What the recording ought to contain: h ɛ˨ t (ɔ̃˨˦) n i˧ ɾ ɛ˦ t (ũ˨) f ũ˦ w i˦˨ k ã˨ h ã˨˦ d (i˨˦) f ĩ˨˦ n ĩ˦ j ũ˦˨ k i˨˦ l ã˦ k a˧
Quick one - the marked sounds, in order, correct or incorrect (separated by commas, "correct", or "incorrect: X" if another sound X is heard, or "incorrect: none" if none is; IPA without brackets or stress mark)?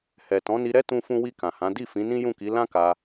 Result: correct, incorrect: ũ˦, incorrect: i˦˨